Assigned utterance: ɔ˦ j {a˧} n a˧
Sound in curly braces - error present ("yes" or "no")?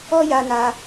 no